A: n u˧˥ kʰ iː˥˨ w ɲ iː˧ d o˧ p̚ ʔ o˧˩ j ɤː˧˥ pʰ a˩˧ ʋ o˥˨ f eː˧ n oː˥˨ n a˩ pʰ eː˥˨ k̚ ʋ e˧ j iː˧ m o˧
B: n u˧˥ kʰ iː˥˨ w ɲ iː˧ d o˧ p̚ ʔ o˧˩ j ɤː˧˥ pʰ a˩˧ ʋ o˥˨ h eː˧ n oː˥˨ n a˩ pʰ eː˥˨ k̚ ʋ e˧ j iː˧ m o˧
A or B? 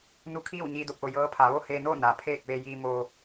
B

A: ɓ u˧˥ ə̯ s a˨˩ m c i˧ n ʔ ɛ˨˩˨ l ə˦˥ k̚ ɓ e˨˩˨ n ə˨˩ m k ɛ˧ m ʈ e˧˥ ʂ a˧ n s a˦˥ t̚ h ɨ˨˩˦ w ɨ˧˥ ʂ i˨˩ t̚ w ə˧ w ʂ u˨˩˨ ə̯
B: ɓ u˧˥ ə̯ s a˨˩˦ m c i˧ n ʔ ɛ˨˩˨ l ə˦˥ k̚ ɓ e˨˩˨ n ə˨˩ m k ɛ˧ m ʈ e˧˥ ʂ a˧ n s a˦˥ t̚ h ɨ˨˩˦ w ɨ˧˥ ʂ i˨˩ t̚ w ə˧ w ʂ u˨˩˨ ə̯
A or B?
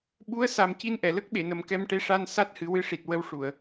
A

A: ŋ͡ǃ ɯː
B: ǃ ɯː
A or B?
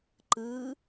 B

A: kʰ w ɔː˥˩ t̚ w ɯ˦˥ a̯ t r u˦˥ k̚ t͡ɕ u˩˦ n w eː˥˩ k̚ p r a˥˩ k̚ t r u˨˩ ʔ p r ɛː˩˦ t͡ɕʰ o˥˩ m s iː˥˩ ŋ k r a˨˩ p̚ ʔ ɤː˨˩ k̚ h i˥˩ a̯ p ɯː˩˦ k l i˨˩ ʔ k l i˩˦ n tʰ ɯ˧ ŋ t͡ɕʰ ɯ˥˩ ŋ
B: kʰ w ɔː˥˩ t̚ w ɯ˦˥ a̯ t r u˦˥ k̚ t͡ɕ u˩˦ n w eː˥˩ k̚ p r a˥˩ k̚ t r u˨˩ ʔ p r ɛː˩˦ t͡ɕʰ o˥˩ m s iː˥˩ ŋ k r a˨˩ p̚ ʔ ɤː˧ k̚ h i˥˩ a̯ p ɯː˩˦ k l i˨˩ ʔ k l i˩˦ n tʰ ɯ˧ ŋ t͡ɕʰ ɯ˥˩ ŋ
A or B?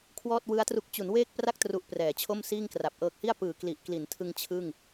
A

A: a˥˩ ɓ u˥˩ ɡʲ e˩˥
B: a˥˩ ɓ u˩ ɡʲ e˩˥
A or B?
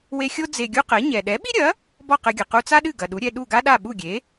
A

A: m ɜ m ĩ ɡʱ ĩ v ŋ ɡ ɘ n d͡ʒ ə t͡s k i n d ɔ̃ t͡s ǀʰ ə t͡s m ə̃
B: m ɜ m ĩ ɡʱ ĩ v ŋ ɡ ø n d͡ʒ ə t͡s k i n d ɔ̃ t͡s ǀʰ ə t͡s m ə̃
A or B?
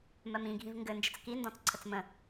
A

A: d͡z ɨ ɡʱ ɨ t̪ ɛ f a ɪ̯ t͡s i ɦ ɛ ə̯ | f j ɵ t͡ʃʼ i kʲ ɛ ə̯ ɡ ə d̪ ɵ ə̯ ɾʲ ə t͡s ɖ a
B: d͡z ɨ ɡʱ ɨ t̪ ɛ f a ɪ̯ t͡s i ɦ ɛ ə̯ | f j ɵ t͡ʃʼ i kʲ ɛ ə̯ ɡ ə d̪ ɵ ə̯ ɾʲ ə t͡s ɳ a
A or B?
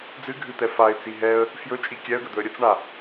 B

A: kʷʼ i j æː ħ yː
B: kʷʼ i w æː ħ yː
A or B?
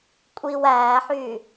B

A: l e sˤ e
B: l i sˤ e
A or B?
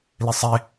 B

